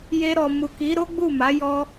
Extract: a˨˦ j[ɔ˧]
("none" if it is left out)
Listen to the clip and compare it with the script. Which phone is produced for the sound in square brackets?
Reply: ɔ˧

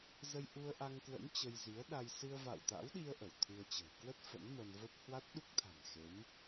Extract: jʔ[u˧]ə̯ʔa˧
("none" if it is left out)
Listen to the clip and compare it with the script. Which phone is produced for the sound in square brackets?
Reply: u˧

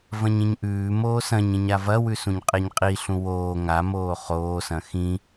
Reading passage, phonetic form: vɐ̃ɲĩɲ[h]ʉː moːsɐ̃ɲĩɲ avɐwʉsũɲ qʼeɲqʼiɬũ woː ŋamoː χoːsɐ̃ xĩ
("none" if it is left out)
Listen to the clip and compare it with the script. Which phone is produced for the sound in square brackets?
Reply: ʔ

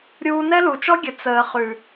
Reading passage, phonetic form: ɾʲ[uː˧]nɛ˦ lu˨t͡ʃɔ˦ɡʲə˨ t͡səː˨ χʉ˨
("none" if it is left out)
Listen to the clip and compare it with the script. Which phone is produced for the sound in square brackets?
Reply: uː˧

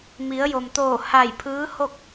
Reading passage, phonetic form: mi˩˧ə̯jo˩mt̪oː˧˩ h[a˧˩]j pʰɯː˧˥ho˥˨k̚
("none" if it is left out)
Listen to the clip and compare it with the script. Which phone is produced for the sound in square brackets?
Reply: a˧˩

